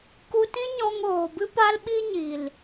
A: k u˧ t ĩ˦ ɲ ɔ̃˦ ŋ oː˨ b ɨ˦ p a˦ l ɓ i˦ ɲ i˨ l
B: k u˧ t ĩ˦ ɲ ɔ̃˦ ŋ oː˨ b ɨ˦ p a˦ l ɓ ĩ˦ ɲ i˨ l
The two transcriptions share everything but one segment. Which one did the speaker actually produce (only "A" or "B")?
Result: A